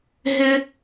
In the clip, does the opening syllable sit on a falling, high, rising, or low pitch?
high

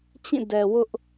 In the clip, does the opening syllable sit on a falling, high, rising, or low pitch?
falling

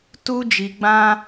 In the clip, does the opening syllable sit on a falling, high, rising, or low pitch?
high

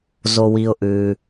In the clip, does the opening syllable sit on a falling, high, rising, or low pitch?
low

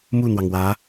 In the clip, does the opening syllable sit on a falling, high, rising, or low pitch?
falling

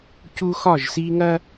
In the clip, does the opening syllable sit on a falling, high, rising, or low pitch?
high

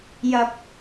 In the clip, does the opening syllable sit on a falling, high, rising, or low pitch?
low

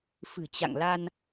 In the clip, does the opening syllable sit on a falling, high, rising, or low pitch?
low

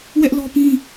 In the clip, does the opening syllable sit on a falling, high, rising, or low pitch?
high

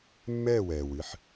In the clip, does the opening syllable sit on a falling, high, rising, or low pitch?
falling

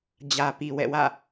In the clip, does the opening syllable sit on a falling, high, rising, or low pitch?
low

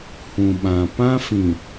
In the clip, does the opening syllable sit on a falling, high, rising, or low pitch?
low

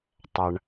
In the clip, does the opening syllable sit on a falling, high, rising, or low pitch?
low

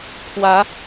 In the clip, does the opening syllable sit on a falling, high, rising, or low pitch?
rising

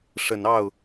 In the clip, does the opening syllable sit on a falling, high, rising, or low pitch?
low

